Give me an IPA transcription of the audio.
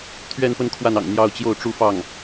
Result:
t̪ʰɥɛ˥˧npə˥˧n kʰwa˥˩nɑ̰˨˩ŋ n̪jɑ˥˧ʊ̯t͡ɕjo˥˩ʊ̯ʈ͡ʂu˥fɑ˥˩ŋ

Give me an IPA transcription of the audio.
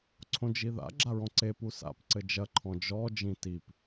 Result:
ǀʰõd͡ʒiða̰ ɡ͡ǁaɹɔ̃ǀe pusa̰p ǀɘd͡ʒɐ ǃʰɔ̃d͡ʒɔ d͡ʒĩtip

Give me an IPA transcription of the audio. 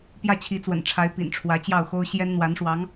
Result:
pjä˥˩t͡ɕʰi˧˥t͡swə̰˨˩nʈ͡ʂʰa˧˥ɪ̯ pḭ˨˩nʈ͡ʂʰwä˧˥ t͡ɕjɑ˥˩ʊ̯xo˥ʊ̯ ɕjɛ˥nn̪wa˧˥nʂwɑ˧˥ŋ

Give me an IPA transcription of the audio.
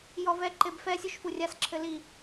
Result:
jɔvɛ ǃebfɛ sʲuʃfurʲas ǁʰɘli

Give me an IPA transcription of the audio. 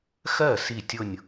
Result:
xɜ˥˩ si˥˩tʲʊ˥˧nʲ

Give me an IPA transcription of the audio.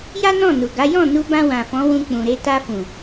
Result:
ja˦nɔ̃˦˨nu˨ɡa˨˦ jɔ̃˦˨nu˧bã˧ wã˨fɔ̃˨˦wũ˧k͡pũ˨ ɾe˧ta˧fũ˨

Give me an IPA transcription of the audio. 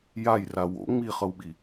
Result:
jajra wo̰ ŋ͡miχɤwɓi

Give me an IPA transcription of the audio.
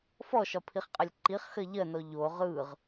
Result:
fɔʃɒpʰiχqʼɜlʲ ǃiχxɜ ʎɜnɔ ʎo ʁɯʁ

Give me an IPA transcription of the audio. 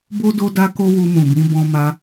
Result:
bo˦ do˧da˧ ko˦wu˧mũ˨bĩ˨˦ bɔ̃˧ma˧

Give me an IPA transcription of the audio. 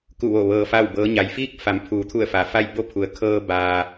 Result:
ku˧˩ʋo˧˩ ʋɤː˧fa˥˨wbɤː˧˥ ɲa˩jfiː˥˨k̚ fa˩˧m pʰuː˩˧t̪ʰu˧˩ə̯ fa˩fa˥˨j bo˥˨pʰu˩˧ə̯ kʰɤː˧baː˩

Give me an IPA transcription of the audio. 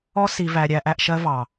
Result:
ɔ˦si˨væ˨ ɾʲæ˨ʔæ˨ʔ ʃɜ˦vɑ˨

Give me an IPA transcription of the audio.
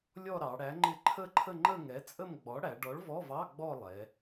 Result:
lʲɔ˥˧ɾɑ˩˧ɽæ˨˥ ŋ͡ǃɪ˥˧ ǃʰə˥˧ǃʰə˥˧ŋ͡ǃə˥˧ ŋɛ˨˥t͡sʼə˥˧mɡ͡bɔ˨˥ ɽæ˩˧ɖɔ˨˥ɭvɔ˧˥˧vɑ˧˥˧ ɡ͡bɔ˥˧lˠɛ˩˧

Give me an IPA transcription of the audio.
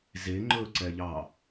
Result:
ze ŋ͡ǃɵǀɛʎɑ

